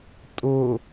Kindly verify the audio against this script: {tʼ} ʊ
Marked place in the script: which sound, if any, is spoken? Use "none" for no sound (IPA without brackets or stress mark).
tʼ